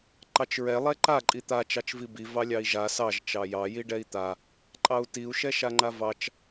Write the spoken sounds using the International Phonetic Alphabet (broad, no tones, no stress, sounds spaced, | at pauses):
ǃ ɑ t͡ʃ ɹ ɛ lˠ ɛ ǃ a ǃʼ i t̪ a t͡ʃ ɑ t͡ʃ v i b i v ɑ lʲ ɑ i̯ ʒ a s ɑ ʒ t͡ʃ ɑ j ɑ j i ɖ ɛ i̯ t̪ a | ǃʼ ɑ u̯ t i u̯ ʃ ɛ ʃ a ŋ͡ǃ a v ɑ t͡ʃ